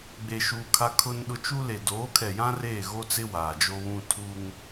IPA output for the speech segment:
ɡ͡be˨ʃu˨ kʰa˦kʰʊ˦nɗʊ˦ t͡ʃu˦le˨ doː˨˦kʰɛ˨jã˦ reː˦˨ɣo˦t͡sɪ˦ waː˨d͡ʒo˦βũ˦ tʰu˦ŋ

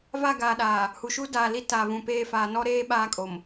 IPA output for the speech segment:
va˦˨ɡaː˨ɗaː˨ | hu˨ʃu˦daː˨ li˦ ta˨vũ˨peː˦˨ faː˨nɔ˦ɾeː˦ ɓaː˦kʼo˨m

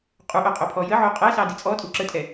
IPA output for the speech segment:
qʼuʔo qʼopʰɔjəʕo qʼɛsɑ dit͡sʼɔtʼu ǁətʼɛ

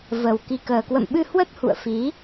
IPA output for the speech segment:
və˨˩w ki˨˩kəː˨˩kwə̰˧˨mɓɨ˧ hwə˦˥t̚hṵ˧˨ə̯fi˨˦

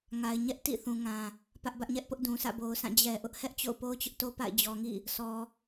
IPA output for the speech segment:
ŋa˨ɪ̯ɲɛ˦ʔ tḭ˦˨ θũ˨ŋã˨ | pä˦ʔbä˦ʔɲɛ˦ʔpʊ˦ʔ dũ˨sʰä̰˦˨bo˨ʊ̯sʰã˦˨ d͡ʑɛ˨ʔʊ˦ʔ hɛ˦ʔt͡ɕo̰˦˨ʊ̯po˦ʊ̯ t͡ɕʊ˦ʔto˦pa̰˦˨ɪ̯ d͡ʑɔ˨ŋḭ˦˨ | sɔ˨

